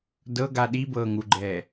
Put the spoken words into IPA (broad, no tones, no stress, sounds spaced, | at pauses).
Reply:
d ɤ ɡ a ɗ i b ɤː ŋ u ɡ͡ǃ ɛː